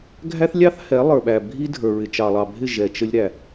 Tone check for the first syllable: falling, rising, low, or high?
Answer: high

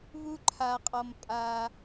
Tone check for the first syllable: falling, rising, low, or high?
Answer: high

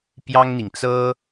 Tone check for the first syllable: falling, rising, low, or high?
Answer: high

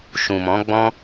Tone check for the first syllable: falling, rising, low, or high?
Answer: low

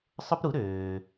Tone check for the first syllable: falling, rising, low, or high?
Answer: high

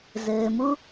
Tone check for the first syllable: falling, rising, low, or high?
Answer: low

